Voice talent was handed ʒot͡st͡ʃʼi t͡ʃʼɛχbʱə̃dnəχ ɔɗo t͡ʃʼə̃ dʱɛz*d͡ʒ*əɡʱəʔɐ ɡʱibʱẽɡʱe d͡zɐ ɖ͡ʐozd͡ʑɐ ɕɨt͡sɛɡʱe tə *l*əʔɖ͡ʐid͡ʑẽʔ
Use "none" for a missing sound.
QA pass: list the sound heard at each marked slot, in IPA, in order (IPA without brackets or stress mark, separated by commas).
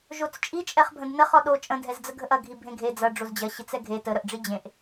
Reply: d͡z, ɾ